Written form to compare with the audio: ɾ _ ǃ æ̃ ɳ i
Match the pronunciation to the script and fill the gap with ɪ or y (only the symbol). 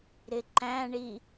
ɪ